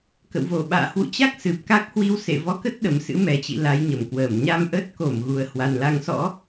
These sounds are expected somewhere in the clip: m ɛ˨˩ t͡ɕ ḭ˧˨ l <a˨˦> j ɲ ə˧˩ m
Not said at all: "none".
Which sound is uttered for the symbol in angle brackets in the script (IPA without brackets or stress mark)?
a˨˦